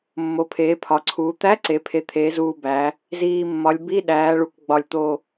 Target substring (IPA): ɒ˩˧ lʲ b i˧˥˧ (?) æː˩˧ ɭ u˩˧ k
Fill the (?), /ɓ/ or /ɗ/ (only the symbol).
ɗ